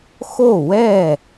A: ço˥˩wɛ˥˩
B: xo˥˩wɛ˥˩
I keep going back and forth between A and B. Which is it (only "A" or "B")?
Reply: B